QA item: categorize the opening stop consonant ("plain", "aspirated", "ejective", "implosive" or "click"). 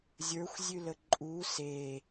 click